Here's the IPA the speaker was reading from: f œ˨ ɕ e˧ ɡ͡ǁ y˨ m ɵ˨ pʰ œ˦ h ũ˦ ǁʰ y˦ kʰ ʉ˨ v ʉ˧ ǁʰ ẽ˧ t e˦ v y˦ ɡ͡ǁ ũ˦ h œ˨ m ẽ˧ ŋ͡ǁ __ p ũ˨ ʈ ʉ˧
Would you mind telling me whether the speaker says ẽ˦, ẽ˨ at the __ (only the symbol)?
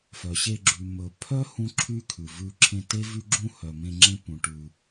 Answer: ẽ˦